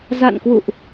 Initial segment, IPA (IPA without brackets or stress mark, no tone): z